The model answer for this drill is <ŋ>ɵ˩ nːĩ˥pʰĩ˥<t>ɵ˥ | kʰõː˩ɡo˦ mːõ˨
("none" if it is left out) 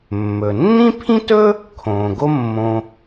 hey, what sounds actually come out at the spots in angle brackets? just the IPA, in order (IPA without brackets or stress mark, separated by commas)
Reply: mː, t